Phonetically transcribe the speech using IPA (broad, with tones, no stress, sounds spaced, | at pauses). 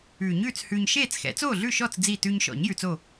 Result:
ʉː˨˩˦ ɲ ʉː˥˨ t͡s h ʉː˧ ɲ ʃ eː˥˨ t͡s x ɛ̰˩˥ t͡s oː˥˨ ɮ ʉ˥˨ ʃ ɔ˥˨ t͡s d͡z i˥˨ t ʉː˧ ɲ ʃ ɔ̰˨˩˦ ɲ j ʉ˧ t͡s o˥˨